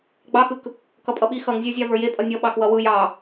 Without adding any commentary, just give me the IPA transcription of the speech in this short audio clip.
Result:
ɡ͡b ɑ x ɯ k | k ʌ pʼ ʌ ɓ i x ʌ ŋ zʲ ə˞ zʲ ɑ v ə˞ j e pʼ ʌ nʲ ʌ ɓ ɑ k w ʌ w ɯ j ɑ

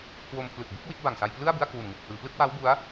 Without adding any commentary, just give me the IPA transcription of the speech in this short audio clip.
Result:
k w o˧ m pʰ l ɯ˨˩ k̚ b u˦˥ k̚ w i˦˥ t̚ b a˨˩ ŋ s a˧ j p l ɯ˥˩ a̯ b ɯ˥˩ a̯ k w u˨˩ n ŋ u˨˩ k̚ h ɯː˩˦ p l ɯ˥˩ k̚ w a˦˥ w b u˦˥ a̯

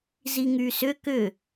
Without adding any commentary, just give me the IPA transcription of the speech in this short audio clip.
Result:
z i ŋ y s ʏ k ʏ

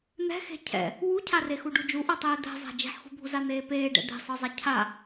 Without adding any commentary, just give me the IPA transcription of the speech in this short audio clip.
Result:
n̪ ɛ̤ x e̤ cʰ ɛ̰ | w u cʰ a r e x u ɖ u d͡ʒ u ʔ ɤ tˤ eː d̪ ɛ̤ zˤ a̤ d͡ʒ e̤ ħ x ṳ bʱ u z a n̪ eː p eː ɖ ɛ̰ d̪ e̤ sˤ ɤ zˤ a cʰ a

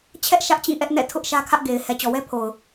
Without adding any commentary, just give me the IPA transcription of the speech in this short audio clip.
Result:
t͡ɕʰ ɛ˦ ʔ ʃ ä˦ ʔ t͡ɕ ĩ˦˨ ʔ ɛ˦ ʔ n ɛ̰˦˨ tʰ ʊ˦ ʔ ʃ ä˦ kʰ ä˦ ʔ ɡ e˨ ɪ̯ h ɛ˨ t͡ɕ ɔ˨ w ɛ˦ pʰ o˨ ʊ̯

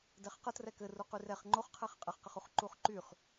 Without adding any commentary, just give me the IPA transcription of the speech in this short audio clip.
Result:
d ɛ χ q ə t r ɛ k ɘ r u q y r ɛ χ ŋ͡ǃ o χ qʰ ɛ χ qʼ ɘ χ q ə χ u χ ǃ u χ ǃ y χ

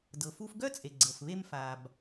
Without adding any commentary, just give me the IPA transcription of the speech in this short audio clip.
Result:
d ɤ˩ f u˧ f ɡ œ˥ t͡sʼ e˩ ɡ͡ǀ ɤ˩ f β e˧ m f a˩ b

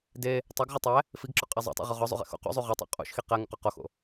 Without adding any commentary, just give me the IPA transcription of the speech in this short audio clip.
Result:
d e | tˤ æ ɡ ʁ ɒ tˤ æ | f i ɡ ǁ ɒ qʼ æ zˤ o̰ tˤ o̰ ʁ o ʁ ɒ zˤ ṵ ʁ ḛ x o̰ q ṵ zˤ u ʁ ɒ tˤ o̰ qʼ ṵ ʃ x i q æ ŋ ṵ q ɒ q o x o̰

